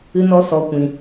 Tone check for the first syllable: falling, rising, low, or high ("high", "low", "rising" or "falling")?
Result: high